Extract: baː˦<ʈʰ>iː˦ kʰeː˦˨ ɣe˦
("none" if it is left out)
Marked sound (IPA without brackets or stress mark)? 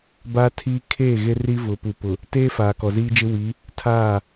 tʰ